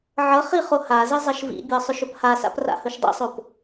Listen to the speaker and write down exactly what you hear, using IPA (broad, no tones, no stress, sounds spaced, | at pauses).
ʕ ʌ χ i χ o h a z i zˤ ʌ ʃ v ḭ bʲ ɤ sˤ ʏ ʃ ɵ p h a s a̰ p r a̰ h ɵ ʃ dˤ ḭ sˤ o p